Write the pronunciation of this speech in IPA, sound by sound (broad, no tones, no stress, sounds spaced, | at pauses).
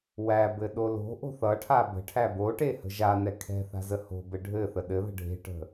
w æ b ɘ ɗ o l o̤ ʔ o̤ θ ʌ ʈʰ a b ə̤ ʈʰ æ b o ʈ e h ə̤ ʒ a n ɛ kʰ ɛ̤ θ a̤ z ə h o̤ b ɘ ɖʱ ɘ θ ə ɗ ɘ ð ə̤ ɖʱ e̤ ʈ ə̤